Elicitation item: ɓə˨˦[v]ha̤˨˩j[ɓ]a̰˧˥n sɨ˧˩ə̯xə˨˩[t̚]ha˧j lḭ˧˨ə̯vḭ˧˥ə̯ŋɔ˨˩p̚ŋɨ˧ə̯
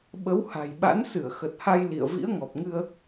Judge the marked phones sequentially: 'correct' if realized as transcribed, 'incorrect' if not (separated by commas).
incorrect, correct, correct